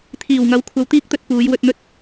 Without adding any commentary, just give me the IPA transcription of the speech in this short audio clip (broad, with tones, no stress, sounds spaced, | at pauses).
t̪ʰ iː˨˩ w ŋ ɐ˨˥ w kʷʰ ɐ˨˧ w t̪ iː˥ k̚ t̪ ɵ˧ t̚ p uː˨˧ j w ɵ˧ t̚ n̪ ɵ˥ t̚